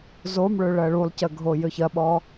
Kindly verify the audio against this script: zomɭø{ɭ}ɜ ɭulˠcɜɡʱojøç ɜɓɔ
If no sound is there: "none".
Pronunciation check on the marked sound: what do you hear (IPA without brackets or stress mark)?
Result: ɭ